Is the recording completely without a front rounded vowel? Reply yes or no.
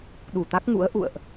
yes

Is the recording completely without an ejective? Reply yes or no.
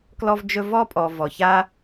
no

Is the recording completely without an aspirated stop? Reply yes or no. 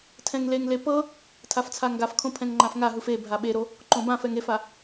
no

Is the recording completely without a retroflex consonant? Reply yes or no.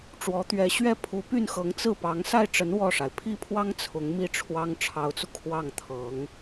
no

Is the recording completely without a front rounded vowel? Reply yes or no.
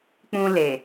yes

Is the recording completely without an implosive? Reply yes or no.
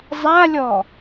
yes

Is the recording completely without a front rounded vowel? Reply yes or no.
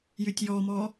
no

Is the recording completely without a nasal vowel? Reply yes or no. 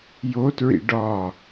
yes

